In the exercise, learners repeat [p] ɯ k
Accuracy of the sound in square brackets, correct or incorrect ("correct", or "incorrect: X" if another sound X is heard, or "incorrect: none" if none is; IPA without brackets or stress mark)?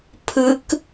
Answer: incorrect: pʰ